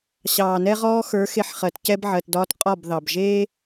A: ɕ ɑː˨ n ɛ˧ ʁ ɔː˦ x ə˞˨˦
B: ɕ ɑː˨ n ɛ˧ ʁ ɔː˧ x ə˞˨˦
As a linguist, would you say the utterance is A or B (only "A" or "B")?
B